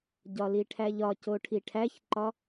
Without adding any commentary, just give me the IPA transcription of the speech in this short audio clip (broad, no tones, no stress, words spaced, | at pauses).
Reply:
ɟɒliʈʰæʎɒ coʈʰiʈʰæçǃɒ